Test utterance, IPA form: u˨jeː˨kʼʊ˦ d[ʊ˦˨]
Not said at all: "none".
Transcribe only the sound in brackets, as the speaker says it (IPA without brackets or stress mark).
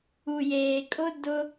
ʊ˦